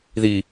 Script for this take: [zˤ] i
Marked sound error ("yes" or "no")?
yes